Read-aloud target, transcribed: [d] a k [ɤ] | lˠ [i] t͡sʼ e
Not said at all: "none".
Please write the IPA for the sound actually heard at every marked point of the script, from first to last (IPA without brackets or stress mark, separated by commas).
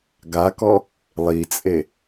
ɡ, ɔ, i